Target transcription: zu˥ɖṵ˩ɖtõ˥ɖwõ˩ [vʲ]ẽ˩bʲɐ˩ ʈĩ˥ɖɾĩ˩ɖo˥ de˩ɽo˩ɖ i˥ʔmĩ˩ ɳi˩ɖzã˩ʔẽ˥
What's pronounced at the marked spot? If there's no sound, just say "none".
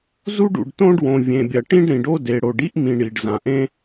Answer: vʲ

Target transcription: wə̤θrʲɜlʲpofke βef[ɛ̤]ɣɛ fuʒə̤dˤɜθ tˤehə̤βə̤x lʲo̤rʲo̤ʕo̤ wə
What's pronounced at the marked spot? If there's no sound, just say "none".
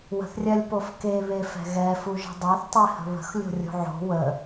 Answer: ɛ̤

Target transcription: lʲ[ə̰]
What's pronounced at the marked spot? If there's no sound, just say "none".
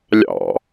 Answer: ɑ̰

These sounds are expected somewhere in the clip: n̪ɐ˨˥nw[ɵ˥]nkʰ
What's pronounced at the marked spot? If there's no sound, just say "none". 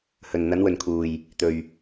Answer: ɵ˨˩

